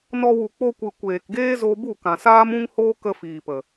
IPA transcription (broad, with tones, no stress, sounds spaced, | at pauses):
n ɔ˧ w u˨ k͡p o˧ kʷ ɨ˨ kʷ eː˨ k ɡ eː˦ z o˧ b u˦˨ k ã˨ s aː˦ m ũ˦ ŋ h oː˦ k ə˦ f iː˨ p ə˨